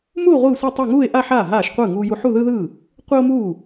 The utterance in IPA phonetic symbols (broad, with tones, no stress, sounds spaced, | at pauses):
m u˥˧ o̯ ʁʷ ɯː˥˧ sʷ i˥˧ tˤ e˥˧ ŋ uː˥˧ e̯ ʔ a˥˧ ħ aː˥˩ ɦ aː˥˩ ʃ qʷ ɯː˥˩ ŋ uː˥ j u˥ ħ u˥˧ ð ɯ˥ ð ɯː˥˩ | qʷ e˥ o̯ m uː˥˩